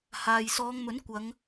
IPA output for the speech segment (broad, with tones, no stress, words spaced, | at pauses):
haː˨j sɔː˨˧ŋmɵ˨˥nkʷɐ˨˧ŋ